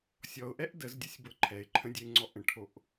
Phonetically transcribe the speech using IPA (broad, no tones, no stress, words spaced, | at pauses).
sʲɔʊ̯ʔɛʔ dəzdʲəsʲbɤ ǃʰɛɪ̯ǃʰə̃dʲɛɪ̯ŋ͡ǀɔ ʔə̃ʈʰoʔ